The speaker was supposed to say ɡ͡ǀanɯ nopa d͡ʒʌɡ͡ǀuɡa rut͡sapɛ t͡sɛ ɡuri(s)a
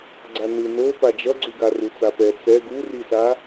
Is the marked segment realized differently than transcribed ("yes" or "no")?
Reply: no